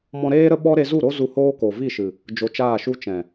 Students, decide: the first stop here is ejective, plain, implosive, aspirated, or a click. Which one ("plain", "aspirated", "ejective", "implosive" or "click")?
implosive